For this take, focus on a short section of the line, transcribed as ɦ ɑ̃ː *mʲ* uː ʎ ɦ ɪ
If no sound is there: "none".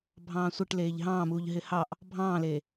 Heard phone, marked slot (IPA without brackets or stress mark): m